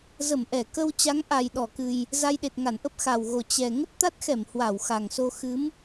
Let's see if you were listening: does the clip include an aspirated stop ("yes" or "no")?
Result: no